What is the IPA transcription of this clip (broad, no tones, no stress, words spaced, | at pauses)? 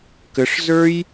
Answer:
kəʂzə˞j